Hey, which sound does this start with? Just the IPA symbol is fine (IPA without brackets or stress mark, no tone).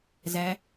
z